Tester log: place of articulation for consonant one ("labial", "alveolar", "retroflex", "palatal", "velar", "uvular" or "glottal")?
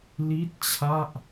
alveolar